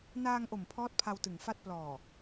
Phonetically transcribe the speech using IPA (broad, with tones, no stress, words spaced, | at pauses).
naː˧ŋʔo˨˩m pʰɔː˦˥t̚pʰa˧wtɯ˨˩ŋfa˥˩t̚ plɔː˨˩